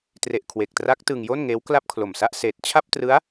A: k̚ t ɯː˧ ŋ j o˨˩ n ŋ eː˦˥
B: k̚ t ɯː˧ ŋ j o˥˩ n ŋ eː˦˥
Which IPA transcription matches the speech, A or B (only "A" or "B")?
B